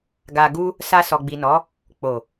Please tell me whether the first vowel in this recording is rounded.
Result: no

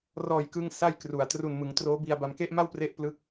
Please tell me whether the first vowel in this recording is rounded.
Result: yes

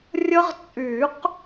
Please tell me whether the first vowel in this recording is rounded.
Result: no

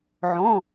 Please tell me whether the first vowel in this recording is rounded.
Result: yes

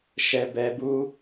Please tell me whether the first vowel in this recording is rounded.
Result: no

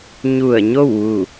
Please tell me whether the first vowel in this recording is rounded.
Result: yes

